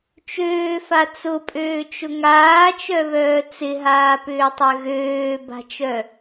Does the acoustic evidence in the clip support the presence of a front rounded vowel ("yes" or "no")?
yes